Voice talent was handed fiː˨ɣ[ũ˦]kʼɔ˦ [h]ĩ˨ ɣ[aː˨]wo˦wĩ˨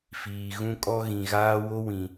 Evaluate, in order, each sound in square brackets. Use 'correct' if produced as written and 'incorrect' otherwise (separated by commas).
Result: correct, incorrect, incorrect